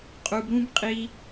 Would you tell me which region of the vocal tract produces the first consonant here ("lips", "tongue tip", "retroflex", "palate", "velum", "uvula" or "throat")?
uvula